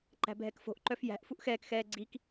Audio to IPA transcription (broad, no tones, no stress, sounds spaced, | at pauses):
ǃ æ̤ bʱ ɛ k f o̤ ʔ ǃ œ f j æ̤ ʔ f u ʔ x ɛː k x ɛː ɡ͡ǀ i k